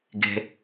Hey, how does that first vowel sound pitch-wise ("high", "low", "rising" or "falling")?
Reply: low